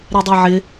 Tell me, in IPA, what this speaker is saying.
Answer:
ɾedˤaʕɪ

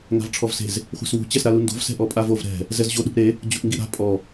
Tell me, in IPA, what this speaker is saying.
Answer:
ŋa̤vʈ͡ʂʰɔvse̤z | χʷɛ̤swṳ t͡ɕɛsɾalundo̤v sɛ̤ʔɔpʼavov ɾɛ̤ | zɛzʑo ɗṳʔɾe | d͡ʑuʔŋɡiɾa̤ pʼɔ

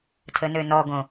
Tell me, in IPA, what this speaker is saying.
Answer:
tʰənønɔɡõ

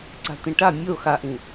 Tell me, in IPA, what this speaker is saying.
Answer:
ǀa̤t̪ĩʈa mʲo xaʔĩ

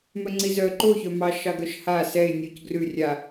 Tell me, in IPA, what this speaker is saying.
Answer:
mœŋ͡ǀizœ ǃoçœmɑʃɑ ɡœʃha sɛɪ̯ nʲoc ɡrʉ rʲa

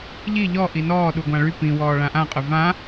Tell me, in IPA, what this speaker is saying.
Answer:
ʎi ʎɔ ʔinɔː ɗuɡʷãɭy pĩ wɔːɭãʔãqʼœ vã

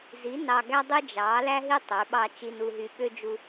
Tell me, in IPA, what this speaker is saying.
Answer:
zi˨˦ nɑ˧ɡæ˦ dˤi˦ d͡ʒɑ˨˦ læ˦ɦi˦ tˤø˨˦ɓɑ˦ t͡ʃi˧nu˧ɦy˧ ɓø˦ d͡ʒu˧

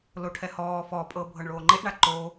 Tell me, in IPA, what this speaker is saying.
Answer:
loʈʰɛhɔː fɔpʼɤ bʱɤɳɭoːŋ͡ǃeʔɳa ǃo

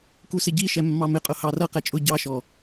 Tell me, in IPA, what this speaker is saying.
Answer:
kusɪɟi ʃɛmːɑmɪqʼʊ hɑrʌ qɛt͡ʃʼʊ ɟɑʃɔ

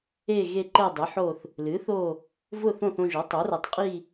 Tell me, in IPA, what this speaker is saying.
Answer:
e˦˨ɣe˦˨ ǃɛ˦˨dˤɨ˩˥ħo˦˨θ | lɨ˩˥θo˦˨ | vʊ˦˨θõ˦˨θõ˦˨ʒo˩˥ tˤo˩˥ rɛ˩˥tˤqʼi˦˨

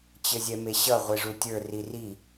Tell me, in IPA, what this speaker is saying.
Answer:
t͡ɕɘzʲɛmeɕʌ ʁʷeʐutʲə˞ riri

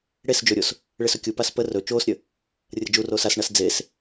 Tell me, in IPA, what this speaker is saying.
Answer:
ɽes d͡ʒɵɾʲos | ɭesɵkʲupas pə rɵ t͡ʃoːsɾʲə | rʲəd͡ʒuroːs asɳas d͡zes

